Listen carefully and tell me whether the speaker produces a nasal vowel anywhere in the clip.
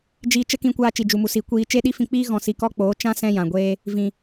yes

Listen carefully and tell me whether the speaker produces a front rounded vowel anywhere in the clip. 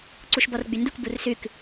yes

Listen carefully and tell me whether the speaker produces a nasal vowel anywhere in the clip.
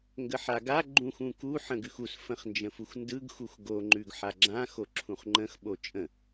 yes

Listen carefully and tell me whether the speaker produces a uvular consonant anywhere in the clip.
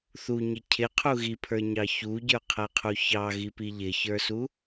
yes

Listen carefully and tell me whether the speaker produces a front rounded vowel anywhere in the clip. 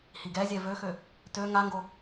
yes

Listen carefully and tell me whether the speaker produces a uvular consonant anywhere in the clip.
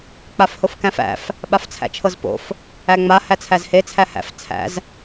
no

